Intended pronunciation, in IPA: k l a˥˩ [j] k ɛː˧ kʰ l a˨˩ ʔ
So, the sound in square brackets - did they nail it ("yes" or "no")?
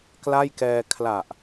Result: yes